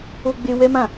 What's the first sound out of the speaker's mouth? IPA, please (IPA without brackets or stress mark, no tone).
o